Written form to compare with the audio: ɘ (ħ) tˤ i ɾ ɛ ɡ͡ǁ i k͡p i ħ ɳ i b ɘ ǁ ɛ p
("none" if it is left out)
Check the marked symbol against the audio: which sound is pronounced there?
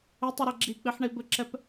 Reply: none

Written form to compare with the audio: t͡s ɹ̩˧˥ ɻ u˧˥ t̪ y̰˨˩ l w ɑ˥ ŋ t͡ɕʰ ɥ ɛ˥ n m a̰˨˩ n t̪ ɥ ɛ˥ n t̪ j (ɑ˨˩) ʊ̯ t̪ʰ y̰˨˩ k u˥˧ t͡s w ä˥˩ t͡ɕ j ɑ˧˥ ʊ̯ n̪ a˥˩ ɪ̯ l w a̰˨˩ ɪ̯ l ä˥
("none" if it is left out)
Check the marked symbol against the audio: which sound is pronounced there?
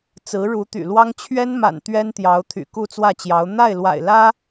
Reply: ɑ˧˥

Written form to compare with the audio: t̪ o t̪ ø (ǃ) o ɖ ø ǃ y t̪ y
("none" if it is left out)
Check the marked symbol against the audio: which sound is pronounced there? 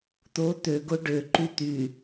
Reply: ɡ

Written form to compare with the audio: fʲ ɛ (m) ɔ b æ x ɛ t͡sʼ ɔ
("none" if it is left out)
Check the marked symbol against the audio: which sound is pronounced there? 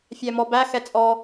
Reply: m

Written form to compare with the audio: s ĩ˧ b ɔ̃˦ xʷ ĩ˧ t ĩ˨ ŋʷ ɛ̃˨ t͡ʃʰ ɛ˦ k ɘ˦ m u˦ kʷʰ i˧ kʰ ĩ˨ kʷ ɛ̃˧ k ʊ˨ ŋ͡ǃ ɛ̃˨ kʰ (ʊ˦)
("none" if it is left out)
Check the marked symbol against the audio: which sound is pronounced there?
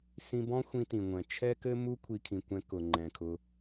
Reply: ʊ˧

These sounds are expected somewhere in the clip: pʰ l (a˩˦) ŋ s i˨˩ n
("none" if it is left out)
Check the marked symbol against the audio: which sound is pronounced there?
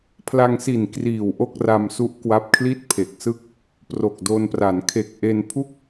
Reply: a˧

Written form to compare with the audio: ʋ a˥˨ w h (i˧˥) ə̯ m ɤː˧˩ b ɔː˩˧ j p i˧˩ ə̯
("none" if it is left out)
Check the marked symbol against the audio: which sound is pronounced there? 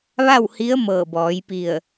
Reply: i˧˥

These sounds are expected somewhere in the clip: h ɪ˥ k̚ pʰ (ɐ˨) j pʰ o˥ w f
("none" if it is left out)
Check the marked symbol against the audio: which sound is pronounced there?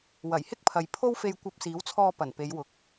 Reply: ɐ˨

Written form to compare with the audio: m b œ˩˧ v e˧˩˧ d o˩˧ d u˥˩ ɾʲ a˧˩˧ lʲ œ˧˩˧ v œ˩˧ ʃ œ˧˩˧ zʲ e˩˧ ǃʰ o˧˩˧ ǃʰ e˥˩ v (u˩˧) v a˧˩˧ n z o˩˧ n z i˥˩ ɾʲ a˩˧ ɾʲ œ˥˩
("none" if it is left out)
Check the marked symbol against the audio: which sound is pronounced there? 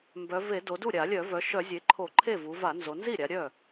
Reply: u˩˧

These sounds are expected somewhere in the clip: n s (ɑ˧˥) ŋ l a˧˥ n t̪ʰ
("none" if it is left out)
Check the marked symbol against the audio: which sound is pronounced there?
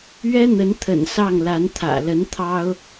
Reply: ɑ˥˩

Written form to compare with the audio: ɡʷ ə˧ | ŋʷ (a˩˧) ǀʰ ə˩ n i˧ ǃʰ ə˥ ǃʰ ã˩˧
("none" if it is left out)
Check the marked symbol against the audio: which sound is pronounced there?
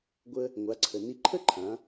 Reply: a˩˧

